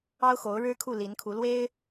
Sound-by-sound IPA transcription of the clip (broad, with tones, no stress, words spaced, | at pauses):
ɑ˥ʊ̯xo˧˥ʊ̯ ɻɻ̩˥kʰu˥˩li˧˥nkʰu˧˥ lwe˥ɪ̯